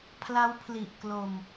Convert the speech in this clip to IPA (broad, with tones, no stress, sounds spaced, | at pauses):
pʰ l a˦˥ w pʰ l i˨˩ ʔ k l o˧ m